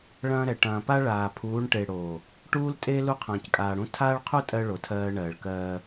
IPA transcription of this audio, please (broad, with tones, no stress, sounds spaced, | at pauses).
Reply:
ɭ ɐ̃ː˦ ɾ ɛ˨ ʈ ɐ̃ː˨ p a˦ ɭ aː˨ pʰ uː˨˦ ɳ ʈ e˨ ɽ o˨ | ʈ uː˦ l tʼ e˦ l u˦ qʰ ɐ̃ː˨ c kʼ aː˨ ɽ ũ˦ tʰ aː˦ ɭ qʰ u˦ tʼ ɜ˦ ɭ o˨ tʰ ɜː˦ ɳ ɜː˨ ɭ k ɜː˦